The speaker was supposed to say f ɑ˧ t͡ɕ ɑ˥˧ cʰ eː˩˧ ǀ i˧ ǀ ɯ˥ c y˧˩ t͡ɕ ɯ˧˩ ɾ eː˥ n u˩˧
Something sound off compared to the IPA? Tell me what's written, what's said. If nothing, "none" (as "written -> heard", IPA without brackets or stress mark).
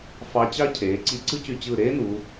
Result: none